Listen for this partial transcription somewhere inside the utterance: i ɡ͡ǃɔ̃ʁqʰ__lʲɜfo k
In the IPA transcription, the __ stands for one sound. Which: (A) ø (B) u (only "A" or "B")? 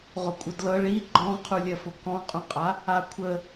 B